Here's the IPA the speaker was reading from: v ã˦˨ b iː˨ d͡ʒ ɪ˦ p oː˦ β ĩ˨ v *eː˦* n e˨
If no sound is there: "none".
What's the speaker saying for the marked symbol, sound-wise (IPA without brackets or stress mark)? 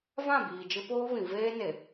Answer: eː˦